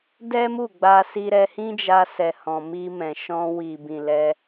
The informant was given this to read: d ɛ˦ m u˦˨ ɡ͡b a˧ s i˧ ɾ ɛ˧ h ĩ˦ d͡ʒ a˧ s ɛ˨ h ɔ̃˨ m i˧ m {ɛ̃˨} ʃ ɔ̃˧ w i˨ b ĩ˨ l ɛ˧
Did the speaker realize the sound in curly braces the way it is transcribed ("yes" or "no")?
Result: yes